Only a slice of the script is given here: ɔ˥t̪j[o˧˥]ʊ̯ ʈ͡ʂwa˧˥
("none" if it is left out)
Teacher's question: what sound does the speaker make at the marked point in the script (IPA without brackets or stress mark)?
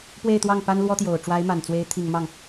o˨˩